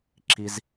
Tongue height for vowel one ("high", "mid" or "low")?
high